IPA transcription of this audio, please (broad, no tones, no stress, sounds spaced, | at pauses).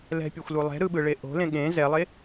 l ɛ̤ pʲ o xʷ l u lˠ ɛ̤ ɾ ɯ ɓ ɯ ɭ e ʔ o̤ l ẽ ɠ ẽ z ɛ lˠ e